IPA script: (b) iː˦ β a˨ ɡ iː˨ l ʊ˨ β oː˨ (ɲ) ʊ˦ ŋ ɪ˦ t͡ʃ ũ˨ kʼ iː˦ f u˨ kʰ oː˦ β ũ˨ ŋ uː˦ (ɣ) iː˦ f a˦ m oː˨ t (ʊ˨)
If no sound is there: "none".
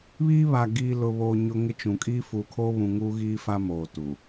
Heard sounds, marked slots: β, ɲ, ɣ, u˨

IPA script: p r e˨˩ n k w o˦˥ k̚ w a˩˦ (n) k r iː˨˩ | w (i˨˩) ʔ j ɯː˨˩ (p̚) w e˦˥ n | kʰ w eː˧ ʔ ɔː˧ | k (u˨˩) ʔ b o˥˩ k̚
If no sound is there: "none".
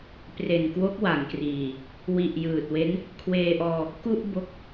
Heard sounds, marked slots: ŋ, i˨˩, t̚, u˥˩

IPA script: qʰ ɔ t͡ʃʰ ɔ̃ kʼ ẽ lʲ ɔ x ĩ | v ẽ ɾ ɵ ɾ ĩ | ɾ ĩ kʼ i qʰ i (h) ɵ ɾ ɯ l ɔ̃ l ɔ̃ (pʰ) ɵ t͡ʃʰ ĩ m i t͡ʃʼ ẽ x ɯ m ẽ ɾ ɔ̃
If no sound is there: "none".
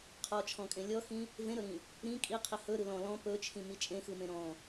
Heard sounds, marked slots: h, p

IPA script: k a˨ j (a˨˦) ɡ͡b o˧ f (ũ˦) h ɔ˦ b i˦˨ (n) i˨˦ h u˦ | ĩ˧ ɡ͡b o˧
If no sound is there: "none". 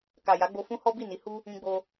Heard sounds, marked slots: a˨˦, ũ˦, n

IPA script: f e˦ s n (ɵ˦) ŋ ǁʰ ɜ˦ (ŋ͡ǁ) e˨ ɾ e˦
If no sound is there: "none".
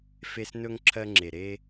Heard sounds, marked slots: ɵ˦, ŋ͡ǁ

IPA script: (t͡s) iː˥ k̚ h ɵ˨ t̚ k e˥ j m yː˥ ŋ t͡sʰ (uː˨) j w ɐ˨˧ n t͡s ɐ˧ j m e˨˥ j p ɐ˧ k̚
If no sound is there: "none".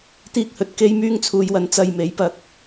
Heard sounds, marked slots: t̪, uː˨

